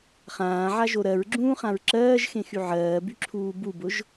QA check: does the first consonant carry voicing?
no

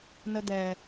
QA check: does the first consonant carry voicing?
yes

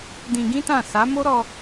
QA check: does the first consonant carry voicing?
yes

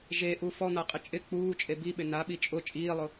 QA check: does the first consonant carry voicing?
yes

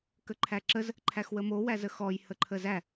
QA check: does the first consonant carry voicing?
no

